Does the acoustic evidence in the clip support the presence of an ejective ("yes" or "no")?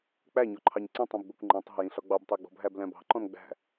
no